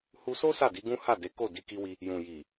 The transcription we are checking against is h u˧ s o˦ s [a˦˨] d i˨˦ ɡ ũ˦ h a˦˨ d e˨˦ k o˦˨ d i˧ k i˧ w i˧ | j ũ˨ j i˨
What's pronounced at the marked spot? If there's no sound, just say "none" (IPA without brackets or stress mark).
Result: a˦˨